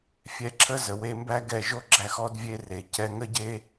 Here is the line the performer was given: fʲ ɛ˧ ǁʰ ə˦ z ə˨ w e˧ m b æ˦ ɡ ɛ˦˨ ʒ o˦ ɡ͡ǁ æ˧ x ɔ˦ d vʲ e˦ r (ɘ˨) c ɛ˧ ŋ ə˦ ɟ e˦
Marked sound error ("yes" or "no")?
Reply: yes